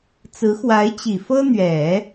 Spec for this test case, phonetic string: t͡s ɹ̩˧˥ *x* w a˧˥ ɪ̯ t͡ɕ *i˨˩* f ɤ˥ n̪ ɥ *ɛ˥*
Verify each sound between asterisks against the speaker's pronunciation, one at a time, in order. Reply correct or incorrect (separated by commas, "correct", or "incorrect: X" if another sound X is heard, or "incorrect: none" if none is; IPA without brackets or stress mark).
correct, correct, incorrect: ɛ˨˩˦